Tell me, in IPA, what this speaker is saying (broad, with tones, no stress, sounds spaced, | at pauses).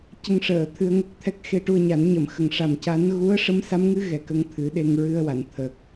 c ə˧ ŋ ʂ əː˨˩˨ t̪ʰ ɨ˧ ə̯ ŋ ə˦˥ k̚ t̪ʰ ɛ˦˥ k̚ x e˧ ʈ u˧ ə̯ ɲ a˨˩˦ n ɲ ə˨˩˨ m x ə˨˩ ŋ ʂ a˨˩ m c a˧˥ n ɣ u˧˥ ə̯ ʂ ə˧˥ m s a˧˥ m ŋ ɨ˧˥ ɣ ɛ˨˩ k ə˧ ŋ t̪ʰ ɨ˨˩˦ ɗ e˧ ŋ ɹ ɨ˧ ə̯ w a˨˩˨ n t̪ʰ ə˨˩ k̚